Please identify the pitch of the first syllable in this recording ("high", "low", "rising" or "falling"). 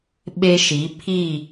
high